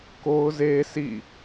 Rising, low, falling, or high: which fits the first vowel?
high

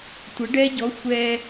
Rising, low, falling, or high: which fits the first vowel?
rising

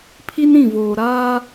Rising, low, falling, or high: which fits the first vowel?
high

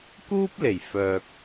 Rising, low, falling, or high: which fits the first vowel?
high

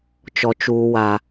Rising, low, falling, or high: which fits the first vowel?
low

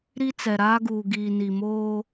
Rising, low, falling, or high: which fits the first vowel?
high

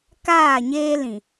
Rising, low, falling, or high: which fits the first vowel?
falling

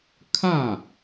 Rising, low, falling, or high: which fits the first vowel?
falling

